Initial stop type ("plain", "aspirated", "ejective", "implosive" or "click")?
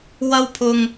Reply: aspirated